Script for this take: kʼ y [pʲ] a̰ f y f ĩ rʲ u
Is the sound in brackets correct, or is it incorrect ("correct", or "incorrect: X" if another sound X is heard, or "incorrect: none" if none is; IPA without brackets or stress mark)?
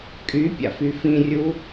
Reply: correct